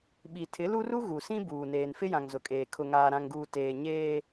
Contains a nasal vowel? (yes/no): yes